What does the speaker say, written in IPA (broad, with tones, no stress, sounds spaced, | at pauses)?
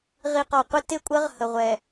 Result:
ʁ i˨ q ɒ˨ qʷ ɪ˦ t ɪ˦˨ kʷʼ ə˦ ʁ h ə˨ ʁʷ ɛ˨